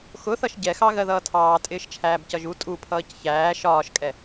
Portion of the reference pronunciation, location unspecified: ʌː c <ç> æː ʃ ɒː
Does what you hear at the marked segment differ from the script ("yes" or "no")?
no